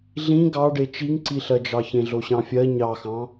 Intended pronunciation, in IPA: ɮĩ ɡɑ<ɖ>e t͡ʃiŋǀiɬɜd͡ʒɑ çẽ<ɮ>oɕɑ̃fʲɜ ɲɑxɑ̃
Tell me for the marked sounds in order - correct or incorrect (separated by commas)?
correct, correct